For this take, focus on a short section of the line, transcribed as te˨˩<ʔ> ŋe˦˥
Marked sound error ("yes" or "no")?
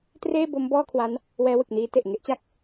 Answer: no